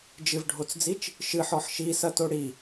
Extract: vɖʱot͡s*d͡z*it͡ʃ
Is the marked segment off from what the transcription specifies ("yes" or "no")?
no